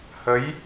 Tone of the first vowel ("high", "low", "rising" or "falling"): rising